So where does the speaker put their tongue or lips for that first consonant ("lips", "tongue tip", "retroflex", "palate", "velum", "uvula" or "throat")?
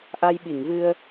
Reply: throat